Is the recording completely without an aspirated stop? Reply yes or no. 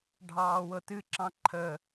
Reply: no